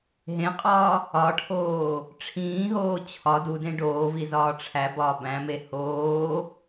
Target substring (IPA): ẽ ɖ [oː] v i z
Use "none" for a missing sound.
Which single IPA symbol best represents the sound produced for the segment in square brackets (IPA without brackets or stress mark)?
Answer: oː